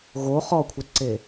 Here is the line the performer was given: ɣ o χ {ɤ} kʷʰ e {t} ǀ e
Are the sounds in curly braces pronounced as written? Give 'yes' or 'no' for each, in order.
no, yes

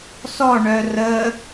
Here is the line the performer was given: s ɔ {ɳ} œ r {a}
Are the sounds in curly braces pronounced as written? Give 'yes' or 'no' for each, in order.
yes, no

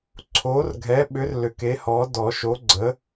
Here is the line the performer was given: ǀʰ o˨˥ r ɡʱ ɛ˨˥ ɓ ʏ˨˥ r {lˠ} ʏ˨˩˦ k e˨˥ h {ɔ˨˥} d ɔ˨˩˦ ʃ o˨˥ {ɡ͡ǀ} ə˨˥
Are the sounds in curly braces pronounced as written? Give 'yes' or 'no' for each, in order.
no, yes, yes

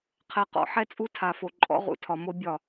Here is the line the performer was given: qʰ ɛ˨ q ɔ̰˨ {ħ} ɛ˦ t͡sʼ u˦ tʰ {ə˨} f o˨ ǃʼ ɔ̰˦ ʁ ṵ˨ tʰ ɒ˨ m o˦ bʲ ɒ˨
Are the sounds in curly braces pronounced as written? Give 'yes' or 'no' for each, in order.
yes, no

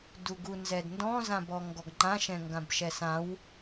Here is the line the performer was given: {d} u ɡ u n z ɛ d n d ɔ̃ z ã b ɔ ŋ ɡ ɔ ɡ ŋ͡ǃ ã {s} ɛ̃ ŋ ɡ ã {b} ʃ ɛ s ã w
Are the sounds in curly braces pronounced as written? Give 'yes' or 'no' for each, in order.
yes, no, yes

